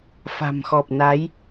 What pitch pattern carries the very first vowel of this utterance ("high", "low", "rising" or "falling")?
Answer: low